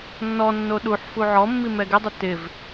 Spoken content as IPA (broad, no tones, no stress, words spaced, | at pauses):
nːɔnːo ɗuħfu ʕɔmːimɛ ɡɪdˤʊ tɪv